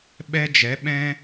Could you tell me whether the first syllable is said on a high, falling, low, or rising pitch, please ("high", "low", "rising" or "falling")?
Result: high